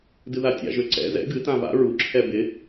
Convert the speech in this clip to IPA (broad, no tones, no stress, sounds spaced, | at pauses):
d ɨ ð a tʲ a̰ ʒ ø ǀ ɛ̰ z ɛ̰ ɡ ɨ t ã v a̰ ɹ u ǁʰ ɛ b ɪ